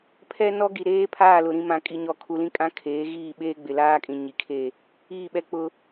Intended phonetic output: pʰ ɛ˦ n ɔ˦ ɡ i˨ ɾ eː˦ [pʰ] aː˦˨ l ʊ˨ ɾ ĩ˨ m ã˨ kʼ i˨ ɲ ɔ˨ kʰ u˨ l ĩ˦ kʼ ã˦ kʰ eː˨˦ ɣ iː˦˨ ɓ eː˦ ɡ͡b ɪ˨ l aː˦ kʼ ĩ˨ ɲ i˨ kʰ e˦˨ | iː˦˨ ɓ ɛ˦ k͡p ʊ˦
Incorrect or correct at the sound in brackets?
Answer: correct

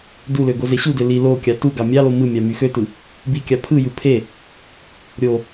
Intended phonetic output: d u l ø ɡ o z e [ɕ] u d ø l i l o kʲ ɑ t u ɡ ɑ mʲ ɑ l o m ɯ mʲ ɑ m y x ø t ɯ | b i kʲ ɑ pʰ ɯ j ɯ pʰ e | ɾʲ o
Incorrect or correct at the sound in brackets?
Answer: correct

